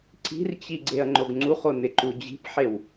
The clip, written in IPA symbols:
ǀi̤rt͡ɕi ɡ͡ǀeɐ̯ŋ͡ǃoɡŋ͡ǀuχo nɪǃud͡ʑi̤pħew

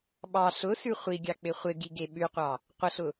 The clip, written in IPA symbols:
ɓɑ ɬʊsʉ χʷiɡʲɑ k͡pɪχʷɪɡi ɡeɓʉqʷɑ | qʷəɬʊ

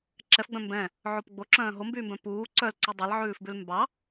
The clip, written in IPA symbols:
ǁɛfɡ͡bœ̃ mbɛ̃ | ʕopɡ͡bo ǁœ̃ːɦombyːmbœ̃ puː ǀœlǀu dˤelʕʉːfbʉl mbɑ

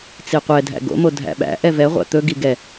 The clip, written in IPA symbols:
t͡siqʷɛdʱæ̰ ɡo̰mo dʱæ̰ɓæ̰ʔɛ vɛʁʷæ̰ t̪ɵɡi ɡɛ

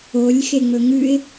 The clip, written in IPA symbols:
olʲxeŋ͡mɵ ŋʉɪ̯

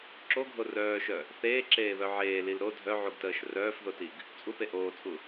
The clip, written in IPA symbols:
ǁoɡʱo rœːʃœ | θeːǁeːβœ ʕeːlil ɾo dʱœʕuɡtəːʃ rœːfðotiɡ | t͡sʼupe ʔoːt͡sʼu

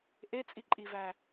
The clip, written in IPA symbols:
ʔet͡sʼiǃʼivæ

